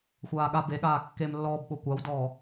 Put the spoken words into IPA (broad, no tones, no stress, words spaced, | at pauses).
xʷaːɠa beɠaː kːemlːɔːbɓo kʷawdɔː